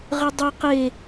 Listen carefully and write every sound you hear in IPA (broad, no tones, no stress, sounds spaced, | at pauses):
ʁ ɯ dˤ u q e